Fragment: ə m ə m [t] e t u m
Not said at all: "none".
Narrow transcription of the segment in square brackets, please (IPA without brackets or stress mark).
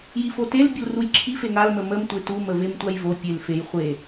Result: tʷ